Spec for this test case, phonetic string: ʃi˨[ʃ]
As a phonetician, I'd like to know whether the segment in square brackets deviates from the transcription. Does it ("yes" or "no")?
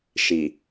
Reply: yes